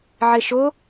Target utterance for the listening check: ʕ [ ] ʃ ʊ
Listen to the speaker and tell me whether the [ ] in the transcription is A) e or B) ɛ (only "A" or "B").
A